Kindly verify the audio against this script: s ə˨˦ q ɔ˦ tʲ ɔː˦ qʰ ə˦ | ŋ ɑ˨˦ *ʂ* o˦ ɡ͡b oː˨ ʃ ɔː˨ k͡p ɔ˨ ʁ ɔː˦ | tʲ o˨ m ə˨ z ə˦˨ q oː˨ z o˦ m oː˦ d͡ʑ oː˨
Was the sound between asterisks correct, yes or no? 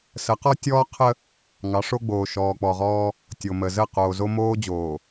yes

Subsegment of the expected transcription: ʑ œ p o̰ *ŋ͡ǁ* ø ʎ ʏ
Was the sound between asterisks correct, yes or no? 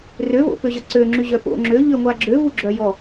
yes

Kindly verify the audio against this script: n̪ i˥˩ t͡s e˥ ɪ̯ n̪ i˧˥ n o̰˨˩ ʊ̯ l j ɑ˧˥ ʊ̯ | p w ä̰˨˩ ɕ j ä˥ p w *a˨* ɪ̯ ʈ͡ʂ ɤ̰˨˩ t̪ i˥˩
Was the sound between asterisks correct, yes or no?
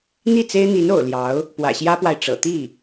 yes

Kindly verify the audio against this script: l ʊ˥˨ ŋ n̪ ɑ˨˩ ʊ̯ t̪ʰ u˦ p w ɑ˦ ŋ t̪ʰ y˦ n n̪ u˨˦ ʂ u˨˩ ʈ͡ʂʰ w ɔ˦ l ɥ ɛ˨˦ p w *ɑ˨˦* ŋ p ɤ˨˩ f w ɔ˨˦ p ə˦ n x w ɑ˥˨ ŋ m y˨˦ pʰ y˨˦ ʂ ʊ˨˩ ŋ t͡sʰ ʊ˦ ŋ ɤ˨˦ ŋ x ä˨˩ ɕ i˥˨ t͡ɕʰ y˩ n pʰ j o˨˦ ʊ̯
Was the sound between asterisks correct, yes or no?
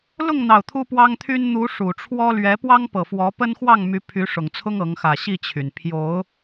no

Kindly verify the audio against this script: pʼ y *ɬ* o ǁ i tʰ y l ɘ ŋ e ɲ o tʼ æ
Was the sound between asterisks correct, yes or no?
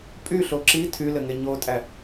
yes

